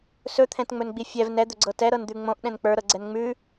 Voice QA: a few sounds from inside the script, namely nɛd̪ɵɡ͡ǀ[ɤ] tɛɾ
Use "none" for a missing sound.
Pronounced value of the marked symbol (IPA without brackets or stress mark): ɤ